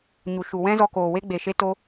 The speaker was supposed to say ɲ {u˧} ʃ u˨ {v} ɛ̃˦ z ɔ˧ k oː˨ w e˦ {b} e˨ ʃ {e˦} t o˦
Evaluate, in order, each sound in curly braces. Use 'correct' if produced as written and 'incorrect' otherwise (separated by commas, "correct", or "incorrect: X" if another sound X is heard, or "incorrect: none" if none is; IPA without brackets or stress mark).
incorrect: u˨, incorrect: w, incorrect: ɡ͡b, correct